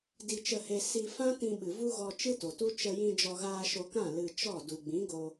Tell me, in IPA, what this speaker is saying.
d i˨ t͡ʃ ə˨ h e˨ s i˧ f ã˦ t ĩ˧ ɓ ɨ˨ v u˦ ɣ ɔ˧ t͡ʃ ɨ˦ t o˨ t u˦ t͡ʃ ə˧ j ĩ˧ d͡ʒ ɔ˧ ɣ aː˧ ʃ o˧ k ã˦˨ l ɨ˧ t͡ʃ ɔ˦˨ d u˨ ɡ͡b ĩ˨˦ ɡ o˧

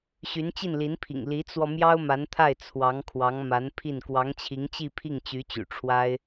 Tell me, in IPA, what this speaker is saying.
ɕ y˧˥ n t͡ɕ i˥˩ n l i˧˥ n pʰ ḭ˨˩ ŋ l i˧˥ t͡s w ɔ˧ m j ɑ˥ ʊ̯ m a˧˥ n t̪ʰ a˥˩ ɪ̯ t͡sʰ w ɑ˧˥ ŋ kʰ w ɑ˧˥ ŋ m a˧˥ n pʰ i˥˩ n k w ɑ˧˥ ŋ t͡ɕʰ i˧˥ ŋ t͡ɕ i˥˧ pʰ i˥˩ ŋ t͡ɕ y˧˥ t͡ɕ y̰˨˩ ʈ͡ʂʰ w a˥ ɪ̯

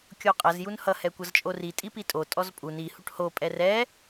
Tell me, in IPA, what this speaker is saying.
kʲ o qʼ ʌ z j u n h ʌ h ɛ kʷ ʌ z t͡ʃʼ o r i tʼ i p i tʼ o tʼ ɔ z pʼ u n i h u ʈ h o pʼ ɛ r ɛ

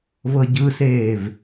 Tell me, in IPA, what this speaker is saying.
v ɤ ɟ ɯ s eː v

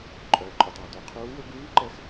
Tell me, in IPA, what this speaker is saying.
ǃʼ œː˩ ǃʼ œ˩ tˤ a˩ d ɵ˩˧ qʰ uː˧˥ w ɵ˥ ɡ ʉː˧˥ ǃ ɛ˧˥ x

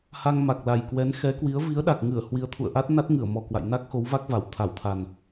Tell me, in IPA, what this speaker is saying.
h a˧ ŋ m a˨˩ k̚ l a˨˩ j k w ɛ˨˦ n x ɛ˨˦ k w i˨˦ ə̯ v i˨˦ ə̯ ɗ a˨˩ k̚ ŋ ɨ˧˩ ə̯ h w i˨˦ ə̯ t̪ʰ ṵ˧˨ ə̯ ʔ a˦˥ t̚ n a˦˥ t̚ ŋ ɨ˧˩ ə̯ m ɔ˨˩ k w a̰˧˨ j n a˦˥ k̚ x o˨˦ w v a˦˥ k̚ v a˧˩ w t̪ʰ a˧˩ w t̪ʰ a˨˩ n

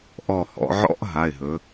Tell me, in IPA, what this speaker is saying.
ʔ ɔ˧˩ h ɔ̰˩˧ ʕ ɔ̰˦˥ ʔ ɦ a˩˧˩ ɪ̯ ɦ ɵ˩˧

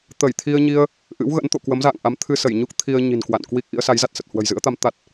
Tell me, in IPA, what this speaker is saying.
t̪ ə˧˩ j t̪ʰ i˧ ə̯ ɲ i˧ ə̯ | ʔ ɨ̰˧˥ w ɣ ə̰˧˥ n t̪ o̰˧˨ k w ə˨˦ m z a̰ː˧˨ ŋ ʔ a˨˦ m t̪ʰ ɨ˧ s ə˧˩ j ɲ u˦˥ k̚ t̪ʰ i˧ ə̯ ɲ i̤˨˩ n k w a̰˧˨ n k w i˦˥ k̚ ʔ ḭ˧˥ ə̯ s a˨˦ j z a˦˥ t̚ s ə˨˩ t̚ h w ə̤˨˩ j z ɨ̰˧˥ ə̯ t̪ a˨˦ m t̪ a˦˥ t̚

